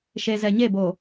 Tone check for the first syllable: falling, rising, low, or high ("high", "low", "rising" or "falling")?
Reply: low